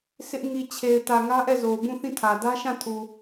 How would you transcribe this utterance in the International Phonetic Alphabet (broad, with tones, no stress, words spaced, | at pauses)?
sɪ˦ʔ ŋi˨t͡ɕʰe˨ɪ̯ tä˨ŋä˦ʔɛ˦˨ zo˨ʊ̯bũ˦˨θĩ˦˨tʰä˨ dä˦ʃã˦˨tʰu˨